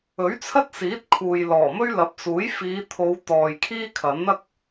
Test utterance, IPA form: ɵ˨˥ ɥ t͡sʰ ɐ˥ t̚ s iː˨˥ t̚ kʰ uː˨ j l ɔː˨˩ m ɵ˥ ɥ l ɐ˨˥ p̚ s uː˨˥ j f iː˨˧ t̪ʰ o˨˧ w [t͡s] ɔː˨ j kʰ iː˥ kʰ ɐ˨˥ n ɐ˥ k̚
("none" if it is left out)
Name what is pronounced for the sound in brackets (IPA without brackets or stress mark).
t̪